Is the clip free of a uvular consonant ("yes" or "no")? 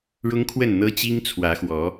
yes